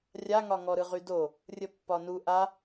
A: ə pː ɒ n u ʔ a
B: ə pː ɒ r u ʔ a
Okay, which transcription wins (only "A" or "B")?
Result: A